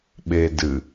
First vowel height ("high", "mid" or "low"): mid